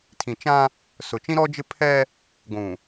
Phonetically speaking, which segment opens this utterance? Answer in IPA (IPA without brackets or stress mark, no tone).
tʰ